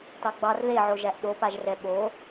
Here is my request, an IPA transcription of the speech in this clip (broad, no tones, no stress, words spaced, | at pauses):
tɑɡ͡bɑr ðeʕo ʒæʔɗopaʒrɛ ɓo